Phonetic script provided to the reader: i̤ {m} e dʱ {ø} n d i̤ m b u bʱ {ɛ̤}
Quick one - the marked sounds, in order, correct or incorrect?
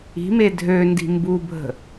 correct, correct, incorrect

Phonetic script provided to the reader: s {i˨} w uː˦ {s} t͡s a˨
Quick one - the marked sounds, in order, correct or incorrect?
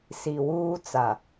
correct, incorrect

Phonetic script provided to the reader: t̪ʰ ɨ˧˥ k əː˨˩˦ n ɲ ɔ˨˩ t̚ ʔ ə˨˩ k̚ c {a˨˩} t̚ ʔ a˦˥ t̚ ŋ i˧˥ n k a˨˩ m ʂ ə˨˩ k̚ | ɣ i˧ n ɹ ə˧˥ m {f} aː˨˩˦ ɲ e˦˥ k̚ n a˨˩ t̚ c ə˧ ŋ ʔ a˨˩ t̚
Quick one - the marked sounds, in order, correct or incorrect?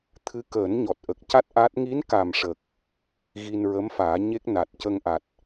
incorrect, correct

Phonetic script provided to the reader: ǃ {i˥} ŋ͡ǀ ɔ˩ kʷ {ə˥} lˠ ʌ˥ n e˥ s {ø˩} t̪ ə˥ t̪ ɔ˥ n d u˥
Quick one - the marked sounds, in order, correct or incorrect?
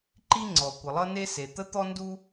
correct, incorrect, incorrect

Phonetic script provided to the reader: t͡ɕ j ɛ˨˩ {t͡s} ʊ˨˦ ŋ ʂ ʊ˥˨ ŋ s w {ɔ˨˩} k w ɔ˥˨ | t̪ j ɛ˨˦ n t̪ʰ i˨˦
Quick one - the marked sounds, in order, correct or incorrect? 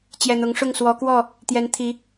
incorrect, incorrect

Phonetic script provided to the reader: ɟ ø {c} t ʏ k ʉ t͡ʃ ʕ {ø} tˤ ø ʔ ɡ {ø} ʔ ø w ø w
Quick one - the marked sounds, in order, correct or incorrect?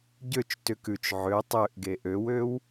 incorrect, correct, incorrect

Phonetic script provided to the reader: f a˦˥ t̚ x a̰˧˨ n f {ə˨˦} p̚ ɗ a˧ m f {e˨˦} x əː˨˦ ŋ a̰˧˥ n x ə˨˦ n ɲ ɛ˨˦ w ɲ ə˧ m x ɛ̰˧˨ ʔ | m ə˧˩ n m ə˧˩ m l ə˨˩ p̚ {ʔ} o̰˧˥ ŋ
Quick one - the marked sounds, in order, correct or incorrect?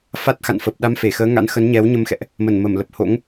incorrect, incorrect, incorrect

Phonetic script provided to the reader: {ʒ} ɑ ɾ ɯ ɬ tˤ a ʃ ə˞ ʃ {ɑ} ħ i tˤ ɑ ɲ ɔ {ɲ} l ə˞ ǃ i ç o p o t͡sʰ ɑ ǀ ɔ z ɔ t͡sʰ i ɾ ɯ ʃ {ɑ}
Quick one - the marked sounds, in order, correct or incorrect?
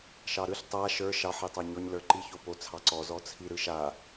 incorrect, correct, correct, incorrect

